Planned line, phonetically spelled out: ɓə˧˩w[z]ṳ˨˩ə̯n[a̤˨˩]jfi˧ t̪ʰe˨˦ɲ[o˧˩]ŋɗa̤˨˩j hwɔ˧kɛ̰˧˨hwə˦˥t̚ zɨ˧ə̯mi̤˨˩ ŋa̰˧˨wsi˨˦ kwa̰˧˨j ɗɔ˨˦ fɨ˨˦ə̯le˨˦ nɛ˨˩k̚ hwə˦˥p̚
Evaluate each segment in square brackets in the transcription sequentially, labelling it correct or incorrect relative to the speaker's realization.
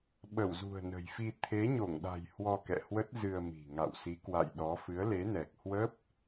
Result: correct, incorrect: ə̤˨˩, correct

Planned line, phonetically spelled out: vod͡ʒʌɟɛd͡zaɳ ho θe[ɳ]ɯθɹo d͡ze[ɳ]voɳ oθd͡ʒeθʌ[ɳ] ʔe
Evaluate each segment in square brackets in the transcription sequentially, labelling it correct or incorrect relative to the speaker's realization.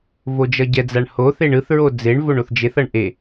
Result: correct, correct, correct

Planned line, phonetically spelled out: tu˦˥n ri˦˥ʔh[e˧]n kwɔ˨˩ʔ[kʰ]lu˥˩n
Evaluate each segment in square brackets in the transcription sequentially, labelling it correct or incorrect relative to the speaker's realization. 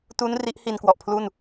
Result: incorrect: i˧, incorrect: pʰ

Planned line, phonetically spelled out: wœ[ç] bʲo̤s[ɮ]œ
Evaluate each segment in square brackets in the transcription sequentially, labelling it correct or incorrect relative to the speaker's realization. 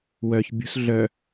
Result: correct, correct

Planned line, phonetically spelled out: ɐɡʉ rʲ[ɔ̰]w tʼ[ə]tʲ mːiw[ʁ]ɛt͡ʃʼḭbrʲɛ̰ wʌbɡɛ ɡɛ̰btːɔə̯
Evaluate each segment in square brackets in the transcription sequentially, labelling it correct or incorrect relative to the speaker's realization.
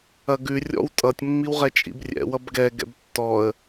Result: correct, incorrect: ʌ, correct

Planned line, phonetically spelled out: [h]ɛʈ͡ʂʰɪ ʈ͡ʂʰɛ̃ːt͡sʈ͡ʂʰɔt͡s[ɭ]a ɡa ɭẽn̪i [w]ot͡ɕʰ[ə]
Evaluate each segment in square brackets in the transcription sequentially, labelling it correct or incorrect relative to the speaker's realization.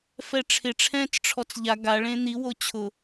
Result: incorrect: f, incorrect: ʎ, correct, incorrect: ʊ

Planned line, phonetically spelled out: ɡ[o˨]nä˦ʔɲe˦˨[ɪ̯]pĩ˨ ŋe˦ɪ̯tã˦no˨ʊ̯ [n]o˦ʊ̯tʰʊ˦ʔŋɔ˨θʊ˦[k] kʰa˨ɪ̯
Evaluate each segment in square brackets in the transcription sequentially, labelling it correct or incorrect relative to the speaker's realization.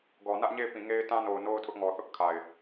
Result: incorrect: ɔ˨, correct, correct, incorrect: ʔ

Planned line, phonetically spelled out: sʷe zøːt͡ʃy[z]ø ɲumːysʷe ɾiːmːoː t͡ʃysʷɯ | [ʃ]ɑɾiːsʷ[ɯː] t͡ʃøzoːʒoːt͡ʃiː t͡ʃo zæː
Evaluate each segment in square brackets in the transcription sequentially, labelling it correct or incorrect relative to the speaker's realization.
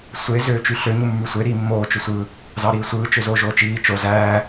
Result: incorrect: ɬ, incorrect: z, correct

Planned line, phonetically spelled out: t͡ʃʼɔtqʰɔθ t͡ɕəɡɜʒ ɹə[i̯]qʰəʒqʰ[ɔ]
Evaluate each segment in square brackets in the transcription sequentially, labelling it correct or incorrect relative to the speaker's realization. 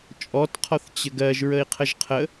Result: correct, incorrect: ə

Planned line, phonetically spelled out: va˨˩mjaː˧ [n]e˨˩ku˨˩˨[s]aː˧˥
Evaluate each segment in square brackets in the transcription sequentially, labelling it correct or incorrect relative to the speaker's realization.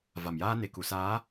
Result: correct, correct

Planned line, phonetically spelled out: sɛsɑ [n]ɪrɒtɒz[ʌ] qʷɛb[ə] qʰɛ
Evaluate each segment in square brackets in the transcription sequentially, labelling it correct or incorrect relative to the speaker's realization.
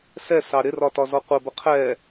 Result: incorrect: ɾ, incorrect: ɔ, correct

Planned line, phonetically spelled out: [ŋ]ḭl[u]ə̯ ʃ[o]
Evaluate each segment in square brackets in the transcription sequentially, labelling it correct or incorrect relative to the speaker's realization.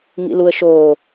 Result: correct, correct, incorrect: oː

